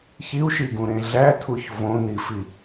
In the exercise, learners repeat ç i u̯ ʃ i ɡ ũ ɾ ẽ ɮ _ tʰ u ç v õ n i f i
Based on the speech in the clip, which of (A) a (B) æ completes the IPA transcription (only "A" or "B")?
B